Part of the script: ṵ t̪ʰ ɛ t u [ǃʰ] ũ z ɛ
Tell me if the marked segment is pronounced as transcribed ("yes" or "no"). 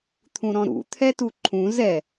yes